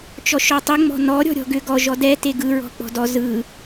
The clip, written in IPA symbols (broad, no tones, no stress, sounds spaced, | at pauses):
t͡ʃ ɔ ʃ ɔ tˤ ɵ ŋ͡m ɔ̤ n ɔ ɾʲ ɔ̤ ɾʲ ɔ̤ ɡ ʏ ɡ ɔ ʒ ɔ d ɛ t e ɡ ɯ ɹ ɔ̤ k͡p ɔ̤ d ɔ z ɯ